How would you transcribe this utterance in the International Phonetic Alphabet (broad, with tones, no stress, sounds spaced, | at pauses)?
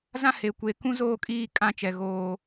z ã˦ h e˨ kʷ e˨ k ũ˦ z oː˦ kʼ iː˦˨ kʼ ã˦ t͡ʃ ɛ˨ ɣ oː˨